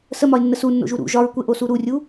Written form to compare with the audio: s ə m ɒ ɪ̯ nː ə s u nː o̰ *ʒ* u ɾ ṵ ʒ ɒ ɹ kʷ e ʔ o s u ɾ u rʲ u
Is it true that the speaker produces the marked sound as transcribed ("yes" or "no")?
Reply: yes